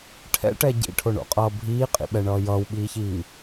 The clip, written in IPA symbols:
ʈʰɛ̰ʈɛ ɟḭʈʰoɳo̰qʼʌː bʱiːqʼḭɓɛɳʌː jʌːwɓiːçiː

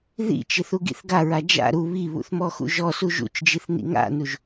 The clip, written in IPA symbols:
ðḭt͡ʃɪ θuɡḭθɡaɹa d͡ʒa̰ ɾu βiβṵθ mɔxṵʒɔsu ʒṵt͡ʃd͡ʒiθ nḭŋa̰nuʒ

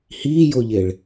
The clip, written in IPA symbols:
hiːjoʎeɭ

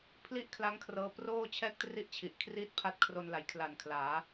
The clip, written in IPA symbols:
pʰli˥˩ʔkʰla˦˥ŋkʰrɤː˧ proː˥˩t͡ɕʰɛː˥˩k̚tri˥˩ʔt͡ɕʰi˨˩ʔ kʰriː˥˩t̚pʰa˦˥t̚kʰro˧nla˩˦j kʰla˨˩nkʰlaː˩˦

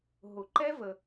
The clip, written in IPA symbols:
ɦʊ˨˩˦ǃɛ˦˥ və˨

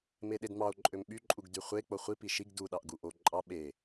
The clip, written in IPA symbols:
meɗedmɑo̯ ǃʼømɓy ǃʼuɡdyχʷe k͡poχʷi piʃiɡ du ɗɑʔɡuʔo ǃʼɑ ɓe

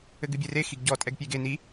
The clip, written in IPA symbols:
ɘɡɨbʲere xiɡɟɔ tʼɛɡpʲeɡen i

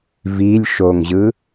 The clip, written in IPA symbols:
vilʲ ʃoŋʑɯ

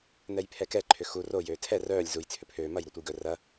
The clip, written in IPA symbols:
nɛjpʰɛkɛ ǃʰʏxu ro jøːtʰɛ rœːlʲ zuj t͡sʰʏpʰøː mɐj ɾotʷəjɡœ rɐ

